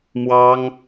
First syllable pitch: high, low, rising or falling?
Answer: high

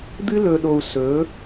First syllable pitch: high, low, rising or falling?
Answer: high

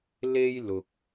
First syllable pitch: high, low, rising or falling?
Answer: high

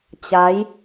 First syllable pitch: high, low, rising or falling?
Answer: rising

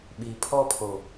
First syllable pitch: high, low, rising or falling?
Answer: low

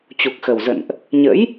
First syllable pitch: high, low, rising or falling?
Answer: low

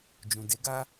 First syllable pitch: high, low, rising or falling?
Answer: low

